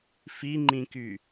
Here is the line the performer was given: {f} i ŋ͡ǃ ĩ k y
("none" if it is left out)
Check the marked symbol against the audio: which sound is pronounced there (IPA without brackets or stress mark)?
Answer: f